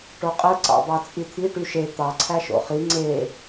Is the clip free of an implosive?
yes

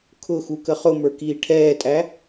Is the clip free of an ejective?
no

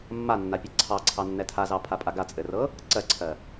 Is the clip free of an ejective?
no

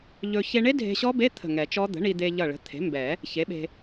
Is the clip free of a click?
yes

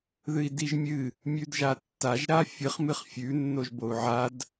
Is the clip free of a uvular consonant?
no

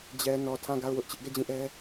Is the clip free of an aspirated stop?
no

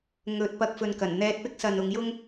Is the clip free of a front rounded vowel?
yes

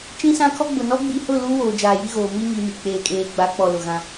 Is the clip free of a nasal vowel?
no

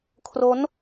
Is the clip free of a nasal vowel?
yes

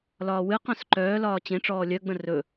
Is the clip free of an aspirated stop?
yes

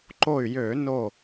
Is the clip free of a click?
no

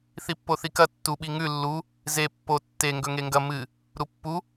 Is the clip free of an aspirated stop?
yes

